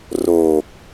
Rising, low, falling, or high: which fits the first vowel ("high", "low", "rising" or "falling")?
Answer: low